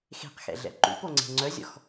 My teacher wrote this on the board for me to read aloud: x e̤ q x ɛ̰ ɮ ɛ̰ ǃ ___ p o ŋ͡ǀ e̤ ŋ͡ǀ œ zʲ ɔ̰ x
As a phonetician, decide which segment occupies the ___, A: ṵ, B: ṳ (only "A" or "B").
A